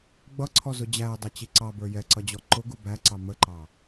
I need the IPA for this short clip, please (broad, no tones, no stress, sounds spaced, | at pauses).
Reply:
ɡ͡b ʌ ǀʰ ɔ z ʊ d͡ʑ æ ə̯ dˤ ʌ t͡ɕ i ǀ ɑ b ə˞ j ɛ ǀ ʌ d͡ʑ ɔ ǃ ʊ ɡ u b æ ǀ ɑ m ə ǃ ɑ